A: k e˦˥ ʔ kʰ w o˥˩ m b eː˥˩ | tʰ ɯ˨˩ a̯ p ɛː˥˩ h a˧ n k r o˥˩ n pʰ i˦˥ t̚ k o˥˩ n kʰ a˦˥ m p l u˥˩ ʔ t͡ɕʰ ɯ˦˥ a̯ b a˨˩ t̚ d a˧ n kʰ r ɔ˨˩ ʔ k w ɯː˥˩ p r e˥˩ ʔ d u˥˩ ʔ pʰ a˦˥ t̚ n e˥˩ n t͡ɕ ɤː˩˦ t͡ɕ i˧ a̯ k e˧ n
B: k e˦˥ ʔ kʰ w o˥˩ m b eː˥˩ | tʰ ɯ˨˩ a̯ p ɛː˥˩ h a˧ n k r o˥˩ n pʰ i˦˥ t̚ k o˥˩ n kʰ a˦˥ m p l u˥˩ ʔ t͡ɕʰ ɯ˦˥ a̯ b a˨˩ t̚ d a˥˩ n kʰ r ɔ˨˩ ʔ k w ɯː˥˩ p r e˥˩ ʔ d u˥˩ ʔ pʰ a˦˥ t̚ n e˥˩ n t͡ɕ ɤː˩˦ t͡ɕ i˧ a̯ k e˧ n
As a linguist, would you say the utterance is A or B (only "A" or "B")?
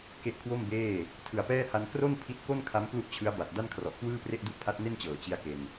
B